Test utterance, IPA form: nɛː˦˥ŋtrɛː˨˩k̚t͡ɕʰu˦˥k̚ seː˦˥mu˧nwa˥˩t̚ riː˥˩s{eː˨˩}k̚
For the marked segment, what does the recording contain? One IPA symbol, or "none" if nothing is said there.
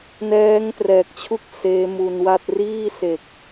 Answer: e˨˩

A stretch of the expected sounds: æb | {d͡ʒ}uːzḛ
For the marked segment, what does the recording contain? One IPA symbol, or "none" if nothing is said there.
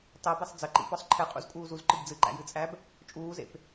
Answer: t͡ʃʼ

